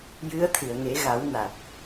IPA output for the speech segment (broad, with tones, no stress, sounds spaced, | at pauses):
j ɨ˧˥ ə̯ t̪ʰ ɨ˨˩˨ ə̯ ŋ e˨˩˦ ɣ a˨˩˦ w n a˨˩ t̚